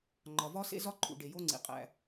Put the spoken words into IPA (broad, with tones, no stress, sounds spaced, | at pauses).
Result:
ŋ͡ǃ ɒ˨ v ɒ˦˥ s ḛ˦˥ z ɒ˦˥ ǃʰ ṵ˨ ɖ e˨ j o˦˥ ŋ͡ǀ ḭ˨ qʼ æ̰˨